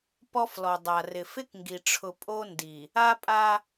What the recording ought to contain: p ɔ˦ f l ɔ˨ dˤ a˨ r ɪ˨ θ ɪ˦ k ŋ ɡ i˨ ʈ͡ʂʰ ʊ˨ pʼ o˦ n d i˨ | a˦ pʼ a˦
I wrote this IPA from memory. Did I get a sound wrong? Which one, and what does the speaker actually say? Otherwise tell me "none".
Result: θ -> f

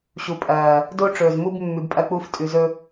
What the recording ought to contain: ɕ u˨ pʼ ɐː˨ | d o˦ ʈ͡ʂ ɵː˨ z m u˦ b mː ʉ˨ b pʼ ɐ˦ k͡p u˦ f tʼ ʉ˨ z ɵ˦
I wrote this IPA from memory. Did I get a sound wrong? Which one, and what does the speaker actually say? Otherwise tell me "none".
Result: none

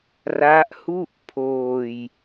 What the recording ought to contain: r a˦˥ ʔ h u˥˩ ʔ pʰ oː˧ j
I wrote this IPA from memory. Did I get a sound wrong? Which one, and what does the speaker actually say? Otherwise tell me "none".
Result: none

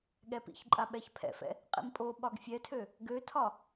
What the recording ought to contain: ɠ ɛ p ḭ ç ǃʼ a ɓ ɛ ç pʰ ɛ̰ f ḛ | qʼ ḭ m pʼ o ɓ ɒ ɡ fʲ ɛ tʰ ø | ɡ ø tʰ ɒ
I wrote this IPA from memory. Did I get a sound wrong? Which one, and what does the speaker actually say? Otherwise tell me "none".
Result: ḛ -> ɛ̰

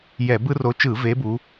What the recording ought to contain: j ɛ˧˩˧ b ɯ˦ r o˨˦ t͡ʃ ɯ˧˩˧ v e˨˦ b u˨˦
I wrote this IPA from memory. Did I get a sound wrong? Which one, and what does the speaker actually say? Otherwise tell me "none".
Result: none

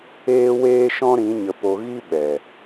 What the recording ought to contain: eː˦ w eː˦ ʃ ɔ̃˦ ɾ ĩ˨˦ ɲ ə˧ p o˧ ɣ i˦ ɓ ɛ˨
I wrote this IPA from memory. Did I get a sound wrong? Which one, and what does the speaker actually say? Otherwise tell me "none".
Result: none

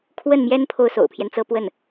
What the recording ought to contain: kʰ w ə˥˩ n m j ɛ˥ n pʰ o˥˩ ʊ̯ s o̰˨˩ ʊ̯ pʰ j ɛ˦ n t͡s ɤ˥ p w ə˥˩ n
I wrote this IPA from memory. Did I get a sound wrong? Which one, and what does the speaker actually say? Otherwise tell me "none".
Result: none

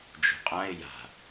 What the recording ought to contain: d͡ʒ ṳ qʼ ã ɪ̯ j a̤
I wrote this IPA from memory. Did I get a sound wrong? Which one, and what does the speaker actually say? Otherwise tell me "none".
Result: none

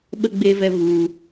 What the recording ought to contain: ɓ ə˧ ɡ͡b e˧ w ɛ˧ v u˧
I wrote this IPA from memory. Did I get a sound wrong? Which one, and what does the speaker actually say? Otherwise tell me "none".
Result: w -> v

